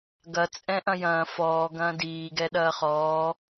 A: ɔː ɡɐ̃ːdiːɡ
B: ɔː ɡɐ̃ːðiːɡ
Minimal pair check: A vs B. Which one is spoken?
A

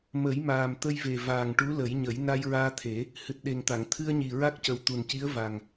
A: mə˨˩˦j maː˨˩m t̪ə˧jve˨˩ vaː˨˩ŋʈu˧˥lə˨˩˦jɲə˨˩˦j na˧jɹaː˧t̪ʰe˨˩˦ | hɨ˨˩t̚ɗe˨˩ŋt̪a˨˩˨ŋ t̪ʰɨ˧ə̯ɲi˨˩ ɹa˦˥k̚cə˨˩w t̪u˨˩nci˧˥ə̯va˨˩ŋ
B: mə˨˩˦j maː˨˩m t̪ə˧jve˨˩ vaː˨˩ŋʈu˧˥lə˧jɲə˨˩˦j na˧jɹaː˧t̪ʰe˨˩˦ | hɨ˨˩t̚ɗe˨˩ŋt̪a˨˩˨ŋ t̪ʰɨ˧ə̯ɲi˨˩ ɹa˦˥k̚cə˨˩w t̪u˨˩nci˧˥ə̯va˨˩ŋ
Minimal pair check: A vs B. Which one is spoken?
A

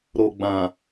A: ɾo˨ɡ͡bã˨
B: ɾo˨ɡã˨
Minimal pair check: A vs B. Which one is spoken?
A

